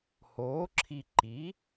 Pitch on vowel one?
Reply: rising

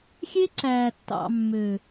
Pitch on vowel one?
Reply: high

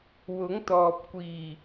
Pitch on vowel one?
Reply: rising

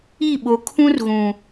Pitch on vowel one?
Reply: falling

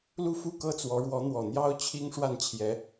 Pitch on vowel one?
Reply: falling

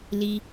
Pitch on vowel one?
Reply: low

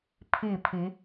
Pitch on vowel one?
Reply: falling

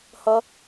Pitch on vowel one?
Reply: high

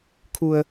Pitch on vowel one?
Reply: low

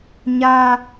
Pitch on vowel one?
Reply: high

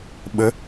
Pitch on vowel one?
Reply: rising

